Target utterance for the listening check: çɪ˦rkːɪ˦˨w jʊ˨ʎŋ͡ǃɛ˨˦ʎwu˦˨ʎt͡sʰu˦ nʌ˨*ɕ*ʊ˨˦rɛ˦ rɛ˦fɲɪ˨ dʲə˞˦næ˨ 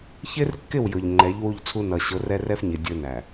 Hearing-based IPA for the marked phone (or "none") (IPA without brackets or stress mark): ɕ